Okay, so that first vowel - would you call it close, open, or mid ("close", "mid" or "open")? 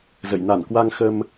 mid